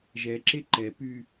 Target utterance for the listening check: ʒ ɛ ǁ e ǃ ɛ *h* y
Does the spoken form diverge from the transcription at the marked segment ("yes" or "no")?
yes